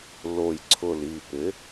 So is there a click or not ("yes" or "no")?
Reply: yes